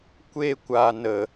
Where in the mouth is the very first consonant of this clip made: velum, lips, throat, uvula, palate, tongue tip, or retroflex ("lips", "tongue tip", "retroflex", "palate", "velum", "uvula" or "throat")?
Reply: velum